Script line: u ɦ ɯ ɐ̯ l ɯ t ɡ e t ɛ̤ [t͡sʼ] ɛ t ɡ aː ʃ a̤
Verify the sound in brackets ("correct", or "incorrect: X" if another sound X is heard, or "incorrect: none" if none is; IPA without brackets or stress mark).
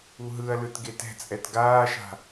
correct